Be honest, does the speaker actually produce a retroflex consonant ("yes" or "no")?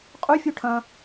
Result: yes